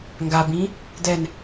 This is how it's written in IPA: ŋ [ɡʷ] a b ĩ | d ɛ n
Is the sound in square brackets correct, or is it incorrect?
incorrect